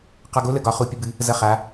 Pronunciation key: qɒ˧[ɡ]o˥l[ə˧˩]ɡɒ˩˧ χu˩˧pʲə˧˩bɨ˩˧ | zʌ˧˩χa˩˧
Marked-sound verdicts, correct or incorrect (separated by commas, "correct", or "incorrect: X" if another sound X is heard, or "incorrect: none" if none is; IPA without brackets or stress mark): correct, correct